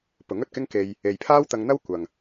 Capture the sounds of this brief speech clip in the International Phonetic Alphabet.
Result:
pʊ˨˥ŋɵ˧t̚kɪ˥ŋke˧j | e˨jpʰaː˥wt̪ɐ˧ŋn̪ɐ˥w kʷɐ˨ŋ

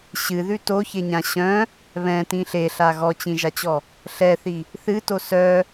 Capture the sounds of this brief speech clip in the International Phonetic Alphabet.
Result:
ɕɨðʉ toçeɲã ɕœ̃ | βɛ̃tĩ ɬeɬa ɣɔt͡ɕĩʒat͡ɕɔ | ɬɛθi | θɨto sœ

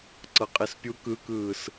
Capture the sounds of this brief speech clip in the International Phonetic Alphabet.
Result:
ǀɤqʼispʲu kɯkɯːs

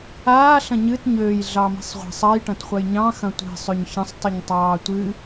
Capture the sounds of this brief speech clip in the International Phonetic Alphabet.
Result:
aː ɬɐ̃ɲɨt ɲøːj ɮɑmi̤sˤʁʷi̤sˤ ɐj ʈɐ̃tχʷɐjɲɑ̃ xɐ̃tʷi̤ sˤøɲçɐ̃sˤtˤɨɲtˤɑː tʷɨ

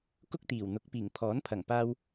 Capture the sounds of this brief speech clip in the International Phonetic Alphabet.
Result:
kʊ˥k̚t̪iː˨˩wn̪ʊ˨˥k̚piː˨˩ŋ pʰɔː˨˥npʰɐ˨˩ŋpaː˧w

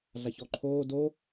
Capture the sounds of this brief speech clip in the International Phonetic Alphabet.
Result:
ɮaçɔǃʰoː do

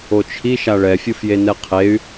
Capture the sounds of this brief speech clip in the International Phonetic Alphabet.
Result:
ot͡ʃʰi ʃaɭɛfʲɯfje nɛqʰey̯

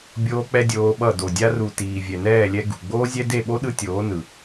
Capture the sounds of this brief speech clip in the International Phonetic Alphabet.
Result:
bʲoː˦k͡pɛ˦dʲoː˧ɓʌ˦˨ do˨dʲa˧ru˨ tiː˨vʲɛ˨nɛː˦˨lʲɛ˧ ɡṳ˨ ɡ͡boː˦zʲɛ˦ de˦˨ɓo˦ɗɯ˧ tʲoː˨˦nɯ˨

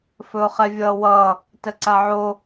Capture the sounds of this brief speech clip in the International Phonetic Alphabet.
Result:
fɵʊ̯χɛvʲʌːwʌː | təǀaʕo

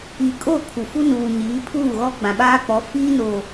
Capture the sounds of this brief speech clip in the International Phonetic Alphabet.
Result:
i˨kʼo˦˨ kʰu˨ fu˦nuː˨ɲiː˨˦ pʰuː˦˨ɣɔ˦ ɡ͡bã˨ɓaː˦k͡pɔ˨˦ fiː˦ no˨

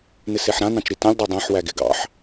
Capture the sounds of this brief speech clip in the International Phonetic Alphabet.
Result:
nɪseħɾã nɑ̃t͡ʃɾitãlʲ dˤœdˤãħ wæɡɪ ɡɑ̰ħ

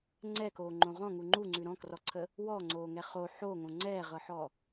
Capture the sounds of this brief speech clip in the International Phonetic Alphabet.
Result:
ŋ͡ǀɛkoːŋ͡ǃõ ʁɔ̃ŋu ŋ͡ǃuŋ͡ǀʉ ɾɔ̃krɔǀʰə | wɔŋ͡ǀoːŋɛ χo ħoŋõ ŋ͡ǀɛʁɤħɔ

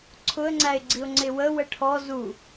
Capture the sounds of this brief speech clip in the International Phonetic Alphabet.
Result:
ǀʰʊə̯ŋ͡ǀæɪ̯ɡ͡ǀiʊ̯ ŋ͡ǀɪwə wəʈʰɔ zu

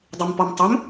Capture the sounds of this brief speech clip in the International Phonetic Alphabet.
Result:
dˤimpɔmtˤom

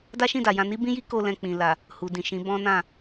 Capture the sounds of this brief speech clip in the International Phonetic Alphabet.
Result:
da˦ʃĩ˦˨da˨jã˧ ni˦bĩ˦ji˦ ko˧ lɛ̃˧k͡pĩ˨ la˨ | hu˨dĩ˨ʃĩ˨˦ bɔ̃˦nã˦˨

